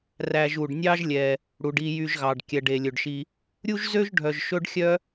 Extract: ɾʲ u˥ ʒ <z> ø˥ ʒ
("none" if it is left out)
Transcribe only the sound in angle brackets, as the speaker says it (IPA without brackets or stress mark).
z